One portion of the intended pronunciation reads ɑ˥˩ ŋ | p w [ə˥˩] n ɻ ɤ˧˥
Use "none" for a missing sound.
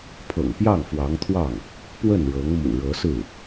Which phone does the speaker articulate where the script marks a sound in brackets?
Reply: ə˥˩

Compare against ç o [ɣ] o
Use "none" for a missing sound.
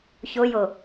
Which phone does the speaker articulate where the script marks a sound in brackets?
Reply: j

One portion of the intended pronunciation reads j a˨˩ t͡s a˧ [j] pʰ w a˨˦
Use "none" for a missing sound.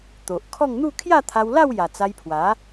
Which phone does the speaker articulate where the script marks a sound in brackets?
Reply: j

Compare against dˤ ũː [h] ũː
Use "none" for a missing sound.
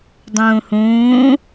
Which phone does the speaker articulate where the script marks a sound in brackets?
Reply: h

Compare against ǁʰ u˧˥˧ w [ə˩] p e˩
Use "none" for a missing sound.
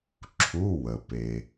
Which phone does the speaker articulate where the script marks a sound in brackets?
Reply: ə˩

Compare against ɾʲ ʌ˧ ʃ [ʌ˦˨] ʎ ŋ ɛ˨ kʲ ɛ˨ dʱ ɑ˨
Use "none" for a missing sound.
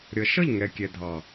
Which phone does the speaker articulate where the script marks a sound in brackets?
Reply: ʌ˦˨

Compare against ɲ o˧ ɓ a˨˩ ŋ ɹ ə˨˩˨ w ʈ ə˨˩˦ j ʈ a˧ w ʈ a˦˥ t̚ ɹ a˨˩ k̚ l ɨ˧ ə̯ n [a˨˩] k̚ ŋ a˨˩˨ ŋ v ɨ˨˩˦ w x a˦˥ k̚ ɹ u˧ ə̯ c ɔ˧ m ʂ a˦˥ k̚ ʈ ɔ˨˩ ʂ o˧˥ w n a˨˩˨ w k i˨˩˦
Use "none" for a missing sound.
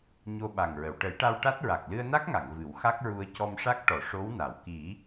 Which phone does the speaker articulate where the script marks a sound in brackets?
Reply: a˦˥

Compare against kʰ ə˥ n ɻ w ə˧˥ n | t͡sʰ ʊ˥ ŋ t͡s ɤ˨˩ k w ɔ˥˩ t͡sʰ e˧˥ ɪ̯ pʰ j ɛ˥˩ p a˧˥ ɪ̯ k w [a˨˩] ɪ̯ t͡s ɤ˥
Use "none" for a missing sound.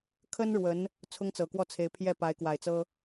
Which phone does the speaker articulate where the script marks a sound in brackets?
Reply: a˨˩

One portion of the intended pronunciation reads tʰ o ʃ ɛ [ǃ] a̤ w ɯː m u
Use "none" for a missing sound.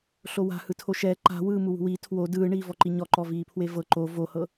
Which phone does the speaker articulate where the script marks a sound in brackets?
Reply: ǃ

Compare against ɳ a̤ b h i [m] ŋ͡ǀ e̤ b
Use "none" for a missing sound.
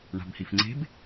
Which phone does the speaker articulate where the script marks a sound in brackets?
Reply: f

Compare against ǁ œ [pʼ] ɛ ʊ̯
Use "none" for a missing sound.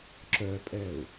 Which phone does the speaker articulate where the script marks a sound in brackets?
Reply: pʼ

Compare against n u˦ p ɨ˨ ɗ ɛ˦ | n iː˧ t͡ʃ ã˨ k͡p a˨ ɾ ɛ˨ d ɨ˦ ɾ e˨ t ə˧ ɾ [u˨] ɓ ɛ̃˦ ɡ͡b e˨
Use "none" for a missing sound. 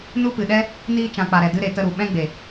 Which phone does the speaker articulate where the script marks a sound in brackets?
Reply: u˨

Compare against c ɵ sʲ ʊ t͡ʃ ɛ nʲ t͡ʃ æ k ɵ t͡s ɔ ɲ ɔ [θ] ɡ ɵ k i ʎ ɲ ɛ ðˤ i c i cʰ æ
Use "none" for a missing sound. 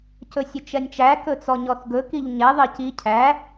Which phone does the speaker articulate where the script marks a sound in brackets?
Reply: θ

